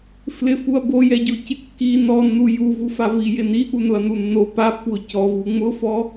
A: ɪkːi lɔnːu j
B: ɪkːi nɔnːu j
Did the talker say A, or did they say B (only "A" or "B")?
B